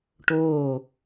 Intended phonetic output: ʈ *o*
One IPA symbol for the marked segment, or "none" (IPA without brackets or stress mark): oː